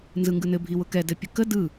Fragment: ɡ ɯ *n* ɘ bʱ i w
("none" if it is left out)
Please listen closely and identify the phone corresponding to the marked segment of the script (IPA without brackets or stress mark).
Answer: n